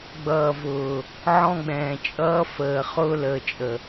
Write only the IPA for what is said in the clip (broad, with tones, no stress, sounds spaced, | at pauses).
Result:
ɡ͡b ʌː˨ v ʊː˨ | ʕ ɔ̃˦ ɡ͡b ɛ̃ː˨ t͡ʃʼ ʌː˦ f əː˨ χ ʊː˦ l əː˨ t͡ʃʼ ə˨